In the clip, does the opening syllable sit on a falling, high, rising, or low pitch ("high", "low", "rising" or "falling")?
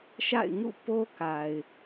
falling